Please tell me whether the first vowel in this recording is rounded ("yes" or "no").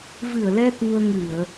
no